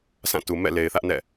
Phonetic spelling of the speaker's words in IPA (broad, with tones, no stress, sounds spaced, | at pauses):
s ã˦˨ t u˨ m ɛ̰˦˨ l e˨ ɪ̯ θ ä˦ ʔ n ɛ̰˦˨